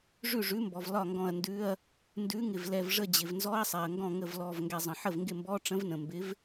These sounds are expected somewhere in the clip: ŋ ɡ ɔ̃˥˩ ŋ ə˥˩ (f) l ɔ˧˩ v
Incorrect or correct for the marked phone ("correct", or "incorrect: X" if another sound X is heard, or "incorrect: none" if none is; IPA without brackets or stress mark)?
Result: incorrect: v